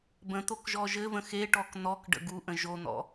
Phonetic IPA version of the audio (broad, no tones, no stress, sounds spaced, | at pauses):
b ə̃ t̪ o k ʒ ɔ ʒ ɘ v ə̃ x e ʈ ɔ k n̪ ɔ k ɖ ə̰ ɡ u ʔ ə̃ ʒ o n̪ ɔ̰